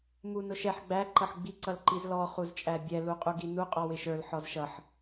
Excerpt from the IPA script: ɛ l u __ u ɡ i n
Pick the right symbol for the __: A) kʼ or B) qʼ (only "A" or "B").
B